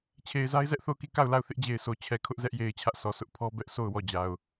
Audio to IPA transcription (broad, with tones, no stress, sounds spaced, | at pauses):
t͡ɕʰ e˨ ɪ̯ z a˦ ɪ̯ z ɛ˦ ʔ θ o˦˨ ʊ̯ k i˦˨ k a˦˨ ʊ̯ l a˦˨ ʊ̯ θ ɪ˦ ʔ d͡ʑ e˨ ɪ̯ s o˨ t͡ɕʰ ɛ˨ kʰ ʊ˦ ʔ z ɛ˦ ʔ j e˨ ɪ̯ t͡ɕʰ ä˦ ʔ sʰ ɔ˨ s ʊ˦ ʔ pʰ ɔ˦ b ɛ˦ ʔ sʰ o˦˨ ʊ̯ w ɔ˦˨ d͡ʑ a˨ ʊ̯